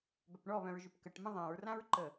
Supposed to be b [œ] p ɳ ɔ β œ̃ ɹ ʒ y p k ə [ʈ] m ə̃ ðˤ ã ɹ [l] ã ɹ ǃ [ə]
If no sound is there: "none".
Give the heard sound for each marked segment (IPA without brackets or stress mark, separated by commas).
œ, ʈ, r, ə